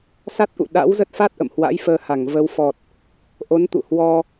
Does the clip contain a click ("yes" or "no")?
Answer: no